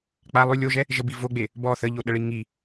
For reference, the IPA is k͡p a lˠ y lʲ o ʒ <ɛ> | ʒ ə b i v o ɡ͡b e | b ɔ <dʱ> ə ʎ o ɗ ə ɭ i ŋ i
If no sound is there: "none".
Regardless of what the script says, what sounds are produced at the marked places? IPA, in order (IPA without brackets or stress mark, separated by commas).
ɛ, θ